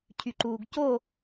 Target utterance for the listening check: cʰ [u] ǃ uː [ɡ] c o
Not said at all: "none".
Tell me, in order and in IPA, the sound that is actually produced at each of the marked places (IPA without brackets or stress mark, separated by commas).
y, ɡ